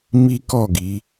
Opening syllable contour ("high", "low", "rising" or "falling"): high